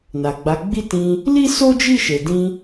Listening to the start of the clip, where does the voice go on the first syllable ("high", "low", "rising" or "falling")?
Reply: low